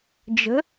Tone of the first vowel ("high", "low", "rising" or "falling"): rising